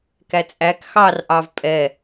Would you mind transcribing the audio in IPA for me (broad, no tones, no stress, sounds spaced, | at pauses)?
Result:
k æ t͡sʼ æ k x ɑ r ʔ ɑ v pʼ ɛ